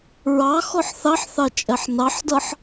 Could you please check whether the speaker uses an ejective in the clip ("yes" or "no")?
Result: yes